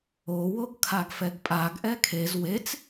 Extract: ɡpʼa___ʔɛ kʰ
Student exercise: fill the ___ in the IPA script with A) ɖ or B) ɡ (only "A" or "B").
B